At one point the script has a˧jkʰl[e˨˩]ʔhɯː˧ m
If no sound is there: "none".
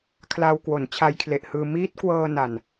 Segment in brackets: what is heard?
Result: e˨˩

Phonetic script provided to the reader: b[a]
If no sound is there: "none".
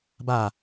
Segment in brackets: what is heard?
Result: a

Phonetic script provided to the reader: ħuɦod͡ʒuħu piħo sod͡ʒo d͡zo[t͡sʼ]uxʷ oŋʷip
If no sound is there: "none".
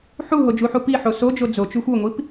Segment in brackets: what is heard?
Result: t͡ʃ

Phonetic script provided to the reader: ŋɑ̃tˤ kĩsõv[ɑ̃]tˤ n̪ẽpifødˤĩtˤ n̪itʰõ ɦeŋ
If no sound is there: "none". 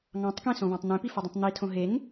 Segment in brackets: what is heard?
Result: ɑ̃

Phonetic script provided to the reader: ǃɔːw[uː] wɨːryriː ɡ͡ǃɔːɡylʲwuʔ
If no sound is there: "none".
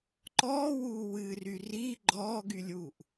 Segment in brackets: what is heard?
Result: uː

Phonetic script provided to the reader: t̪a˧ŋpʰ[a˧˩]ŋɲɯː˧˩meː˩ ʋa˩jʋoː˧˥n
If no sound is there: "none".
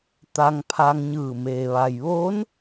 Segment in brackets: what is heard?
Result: a˧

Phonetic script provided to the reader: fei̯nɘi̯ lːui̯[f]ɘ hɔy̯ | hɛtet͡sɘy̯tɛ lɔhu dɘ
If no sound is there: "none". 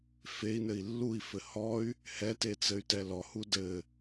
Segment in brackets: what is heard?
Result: f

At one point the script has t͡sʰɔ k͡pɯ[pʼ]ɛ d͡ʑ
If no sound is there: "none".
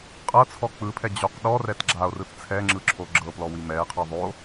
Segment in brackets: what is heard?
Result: pʰ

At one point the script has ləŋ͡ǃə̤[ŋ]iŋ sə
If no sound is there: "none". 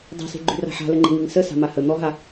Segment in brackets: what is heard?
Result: ŋ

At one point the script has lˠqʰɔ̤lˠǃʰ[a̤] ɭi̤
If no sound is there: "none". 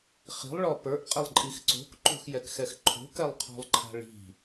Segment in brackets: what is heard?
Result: a̤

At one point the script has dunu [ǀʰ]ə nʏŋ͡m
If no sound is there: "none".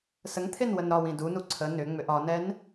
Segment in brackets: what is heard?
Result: ǀʰ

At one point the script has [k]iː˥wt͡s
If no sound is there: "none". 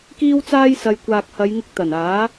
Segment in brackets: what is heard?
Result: k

